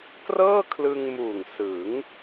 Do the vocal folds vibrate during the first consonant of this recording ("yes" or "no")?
no